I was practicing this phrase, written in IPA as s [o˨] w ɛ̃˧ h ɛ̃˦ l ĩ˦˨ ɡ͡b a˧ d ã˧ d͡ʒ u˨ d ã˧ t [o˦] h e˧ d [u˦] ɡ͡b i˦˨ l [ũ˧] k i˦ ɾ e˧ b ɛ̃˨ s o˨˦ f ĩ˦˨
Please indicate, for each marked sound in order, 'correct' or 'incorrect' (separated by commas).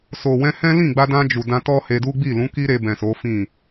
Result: correct, incorrect, correct, incorrect